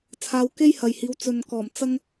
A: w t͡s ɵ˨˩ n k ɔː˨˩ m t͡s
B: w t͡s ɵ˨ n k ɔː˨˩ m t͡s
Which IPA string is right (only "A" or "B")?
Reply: B